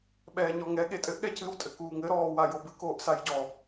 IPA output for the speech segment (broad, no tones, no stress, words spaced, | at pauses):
ɓɛːɲɔŋɛ ɠetʼɘʔ ɠɛcɨw tʼɘkuːŋɘ ɾɔːwajobɨ koːʔsajɟɔ